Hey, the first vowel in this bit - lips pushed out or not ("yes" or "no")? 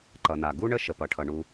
no